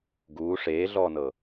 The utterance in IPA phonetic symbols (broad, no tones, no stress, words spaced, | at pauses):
ɡuː ʂeːɮɔːnɤ